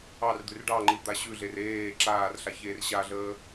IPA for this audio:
ɑ r d̪ ʉ r ɖ ɑ ŋ͡ǃ i d̪ a ɕ ʉ ɮ e r eː ǁ aː r ɬ a ç eː r ɕ a ɮ əː

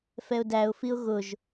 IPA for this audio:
f ɛ ʊ̯ d æ ʊ̯ f i ʊ̯ ɣ ʊ ʒ

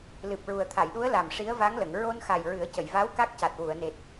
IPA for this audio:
l ɨ˨˩ p̚ ɹ u˨˩ ə̯ t̪ʰ a˨˩˨ j ɗ u˧˥ ə̯ l a˨˩ m ʂ i˧˥ ə̯ v a˧˥ ŋ l ə˨˩˨ ŋ ɹ o˧ n x a˨˩ j ɹ ɨ˨˩˦ ə̯ c ə˨˩˨ j v a˧˥ w k a˦˥ k̚ c a˨˩ t̚ w u˨˩˨ ə̯ n e˨˩ t̚

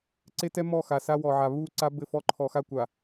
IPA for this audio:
ǀ e˦ t ɛ˦ m ɔ˦˨ x a˨ s a˦ w ɔ˨ ʕ a˨ β u˦˨ ǀ a˦ b ɘ˦˨ f ɔ˦ ǃʰ ɔ˨ x a˦ kʷ a˨

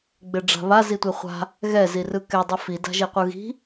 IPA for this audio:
ɡ͡b e ɖ͡ʐ a̤ β a z i tʷ e χʷ a̤ | ɣ ɛ z i r ɯ k ɛ dˤ ɯ f i d a̤ ʒ e qʷ ɯ ɣ i̤

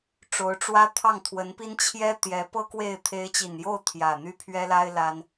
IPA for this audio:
ʈ͡ʂ o˧˥ ʊ̯ ʈ͡ʂ w ä˥ t̪ʰ ɑ˥˩ ŋ t̪ʰ w ə˧˥ n p i˥ n t͡ɕʰ j ɛ˥ t̪ j ɛ˧˥ p ɤ˥ k w e˥˩ ɪ̯ t̪ʰ e˧˥ ɪ̯ t͡ɕ i˨˩ n j o˥˩ ʊ̯ t̪ʰ j ä˨˩ n̪ y˥˩ pʰ ɥ ɛ˥ l a˥ ɪ̯ l a˥ n

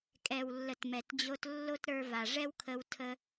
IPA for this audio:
kʼ ɛ˨ w lː ə˨ t m ɛ˨ t d͡ʑ o˧ t lː o˦ t ɾ ə˞˧ v a˨ ʐ ɛ˦ w kʰ ə˧ w tʰ ə˦

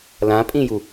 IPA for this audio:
l ã pʼ ĩ j u

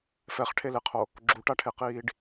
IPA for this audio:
f ɛ χ ʈʰ e l e qʰ o | ɡ͡ǁ u ʈ a ʈʰ e q iː ɖ

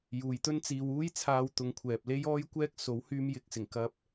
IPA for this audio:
j uː˨ j t̪ ɵ˥ n t͡s iː˧ w uː˥ j t͡sʰ aː˧ w t̪ ʊ˨˧ ŋ kʷʰ ɛː˨ p̚ l e˥ j ɔː˥ j kʷ ɛː˥ k̚ s o˨˥ w h yː˧ m j ɪ˨˥ k̚ s ɪ˨˩ ŋ k ɐ˧ p̚

